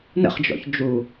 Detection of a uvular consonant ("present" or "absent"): present